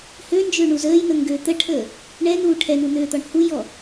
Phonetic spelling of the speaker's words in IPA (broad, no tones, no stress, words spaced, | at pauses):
hønd͡ʒøɳu zəːjn̪əŋɡø t̪əʈʰəː | ɳɛn̪uː ʈʰɛn̪un̪øːt̪ɔɳ hujɔ